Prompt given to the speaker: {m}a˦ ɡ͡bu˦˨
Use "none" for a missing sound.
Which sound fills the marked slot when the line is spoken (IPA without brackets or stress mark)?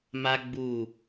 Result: m